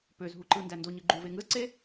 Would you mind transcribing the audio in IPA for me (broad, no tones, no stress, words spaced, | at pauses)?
pøzɦu ǃɯ ndændoɲɯ ɡ͡ǃuve ŋɯzǀe